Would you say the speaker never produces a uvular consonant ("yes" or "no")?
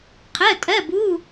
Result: no